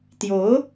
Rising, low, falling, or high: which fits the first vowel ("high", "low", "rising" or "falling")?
rising